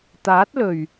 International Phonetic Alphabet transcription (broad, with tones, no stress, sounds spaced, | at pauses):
t̪ aː˨˥ t̚ l ɵ˨˩ ɥ